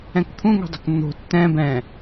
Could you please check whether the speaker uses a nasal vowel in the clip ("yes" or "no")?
yes